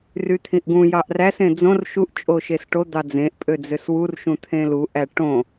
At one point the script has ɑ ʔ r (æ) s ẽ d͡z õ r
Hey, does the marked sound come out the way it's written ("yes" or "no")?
yes